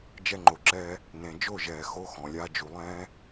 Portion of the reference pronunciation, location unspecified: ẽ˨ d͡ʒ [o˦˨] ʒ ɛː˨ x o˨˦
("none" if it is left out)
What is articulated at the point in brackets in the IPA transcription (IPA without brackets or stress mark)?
o˦˨